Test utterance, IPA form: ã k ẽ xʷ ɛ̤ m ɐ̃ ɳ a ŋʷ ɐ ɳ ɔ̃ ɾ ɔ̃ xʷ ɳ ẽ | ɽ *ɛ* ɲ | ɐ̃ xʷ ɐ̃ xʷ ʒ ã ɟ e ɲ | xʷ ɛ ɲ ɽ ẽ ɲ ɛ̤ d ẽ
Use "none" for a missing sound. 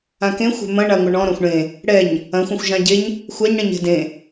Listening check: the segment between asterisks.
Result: ɛ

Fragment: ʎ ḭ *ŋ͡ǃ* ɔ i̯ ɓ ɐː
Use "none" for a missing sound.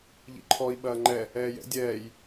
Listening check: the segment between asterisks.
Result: ǃʰ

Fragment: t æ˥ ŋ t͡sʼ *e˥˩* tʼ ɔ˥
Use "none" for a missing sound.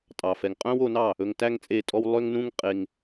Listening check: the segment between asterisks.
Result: e˥˩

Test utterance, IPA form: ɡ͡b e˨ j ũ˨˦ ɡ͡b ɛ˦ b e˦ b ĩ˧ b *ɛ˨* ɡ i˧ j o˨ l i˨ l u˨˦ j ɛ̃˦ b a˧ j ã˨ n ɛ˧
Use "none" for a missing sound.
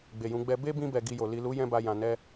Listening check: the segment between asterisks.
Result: ɛ˨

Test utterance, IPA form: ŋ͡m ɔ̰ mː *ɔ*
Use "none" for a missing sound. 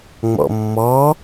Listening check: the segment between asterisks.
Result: ɔ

